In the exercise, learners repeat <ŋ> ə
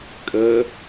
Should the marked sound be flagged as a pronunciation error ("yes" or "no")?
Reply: yes